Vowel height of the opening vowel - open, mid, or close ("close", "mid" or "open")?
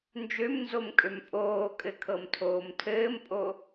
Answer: mid